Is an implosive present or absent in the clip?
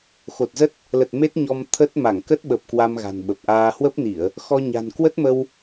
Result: present